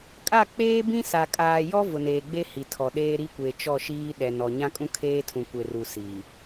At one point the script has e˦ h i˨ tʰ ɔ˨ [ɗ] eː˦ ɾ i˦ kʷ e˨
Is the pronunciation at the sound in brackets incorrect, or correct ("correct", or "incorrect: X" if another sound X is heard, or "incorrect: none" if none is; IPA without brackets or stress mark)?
correct